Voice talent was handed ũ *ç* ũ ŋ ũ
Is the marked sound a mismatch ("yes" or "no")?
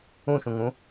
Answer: yes